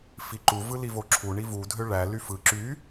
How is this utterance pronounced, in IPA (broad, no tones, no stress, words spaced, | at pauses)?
fiǃu vɯlivoǁʰu ɳivu dʱøɭæ lyfɯ ǁy